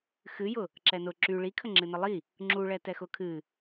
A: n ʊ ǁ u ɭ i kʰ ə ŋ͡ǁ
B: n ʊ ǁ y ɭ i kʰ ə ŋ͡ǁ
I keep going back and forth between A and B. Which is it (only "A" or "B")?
B